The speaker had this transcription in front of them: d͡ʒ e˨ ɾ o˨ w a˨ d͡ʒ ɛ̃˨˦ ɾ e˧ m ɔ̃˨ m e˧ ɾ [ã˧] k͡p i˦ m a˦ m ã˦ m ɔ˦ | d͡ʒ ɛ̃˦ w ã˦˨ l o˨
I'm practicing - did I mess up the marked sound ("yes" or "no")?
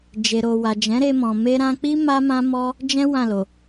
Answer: no